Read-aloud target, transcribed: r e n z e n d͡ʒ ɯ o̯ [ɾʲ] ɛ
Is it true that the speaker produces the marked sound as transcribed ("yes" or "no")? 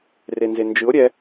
yes